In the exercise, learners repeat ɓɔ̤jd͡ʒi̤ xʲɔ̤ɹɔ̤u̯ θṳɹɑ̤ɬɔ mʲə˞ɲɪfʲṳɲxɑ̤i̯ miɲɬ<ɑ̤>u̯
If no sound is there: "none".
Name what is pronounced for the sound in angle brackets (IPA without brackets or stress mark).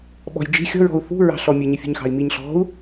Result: ɔ̤